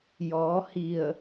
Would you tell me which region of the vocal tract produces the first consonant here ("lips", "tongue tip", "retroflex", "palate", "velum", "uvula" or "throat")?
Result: palate